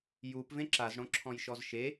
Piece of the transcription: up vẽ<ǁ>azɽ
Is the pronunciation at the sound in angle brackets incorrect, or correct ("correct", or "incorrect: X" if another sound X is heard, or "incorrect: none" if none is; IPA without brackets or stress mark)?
correct